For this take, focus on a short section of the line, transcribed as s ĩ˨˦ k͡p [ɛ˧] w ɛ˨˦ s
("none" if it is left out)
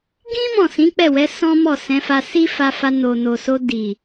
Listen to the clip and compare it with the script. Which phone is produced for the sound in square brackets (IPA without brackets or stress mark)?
ɛ˦˨